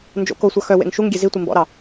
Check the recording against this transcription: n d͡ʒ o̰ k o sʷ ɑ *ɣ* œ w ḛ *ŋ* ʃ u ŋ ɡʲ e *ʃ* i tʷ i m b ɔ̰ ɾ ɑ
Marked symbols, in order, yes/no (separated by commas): no, yes, no